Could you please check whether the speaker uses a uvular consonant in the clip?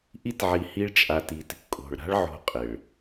yes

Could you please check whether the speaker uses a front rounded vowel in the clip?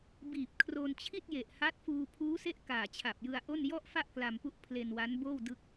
no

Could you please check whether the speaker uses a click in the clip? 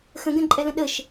yes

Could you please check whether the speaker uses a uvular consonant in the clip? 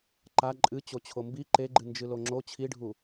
no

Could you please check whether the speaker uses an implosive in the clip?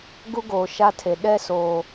yes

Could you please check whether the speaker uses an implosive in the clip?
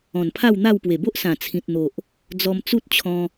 no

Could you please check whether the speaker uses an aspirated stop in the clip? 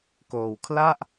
yes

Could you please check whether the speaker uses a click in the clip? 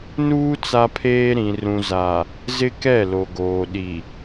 no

